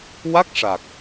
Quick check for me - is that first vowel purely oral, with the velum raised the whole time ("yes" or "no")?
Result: yes